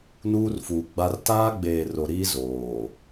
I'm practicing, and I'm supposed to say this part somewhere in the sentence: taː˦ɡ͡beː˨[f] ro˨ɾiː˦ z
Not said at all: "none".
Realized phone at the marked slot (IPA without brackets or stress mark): none